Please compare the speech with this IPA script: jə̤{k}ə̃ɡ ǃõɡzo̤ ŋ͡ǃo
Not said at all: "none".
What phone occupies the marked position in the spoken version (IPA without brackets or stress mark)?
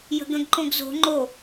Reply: ɡ